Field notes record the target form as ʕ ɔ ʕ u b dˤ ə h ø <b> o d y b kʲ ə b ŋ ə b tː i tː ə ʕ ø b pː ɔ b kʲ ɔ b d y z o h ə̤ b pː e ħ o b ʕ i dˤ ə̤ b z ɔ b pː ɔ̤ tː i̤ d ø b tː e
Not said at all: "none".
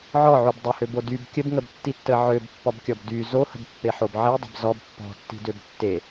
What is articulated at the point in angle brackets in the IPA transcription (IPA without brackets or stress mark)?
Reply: b